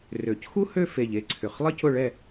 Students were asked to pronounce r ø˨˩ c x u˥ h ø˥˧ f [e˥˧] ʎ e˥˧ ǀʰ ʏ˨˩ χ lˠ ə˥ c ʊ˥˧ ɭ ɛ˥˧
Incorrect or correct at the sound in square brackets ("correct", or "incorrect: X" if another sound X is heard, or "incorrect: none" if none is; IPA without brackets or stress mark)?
incorrect: e˨˩